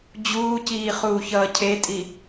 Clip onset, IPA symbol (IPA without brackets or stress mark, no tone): d͡ʑ